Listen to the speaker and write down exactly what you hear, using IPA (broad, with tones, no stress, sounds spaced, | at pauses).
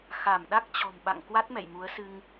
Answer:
x a˧˩ m ɗ a˦˥ k̚ t͡ɕ ɔ̤˨˩ m ɓ a̰˧˨ ŋ k w a˦˥ t̚ m ɛ̰˧˨ j m u˨˦ ə̯ s ɨ˧ ŋ